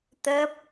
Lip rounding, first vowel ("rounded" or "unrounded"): unrounded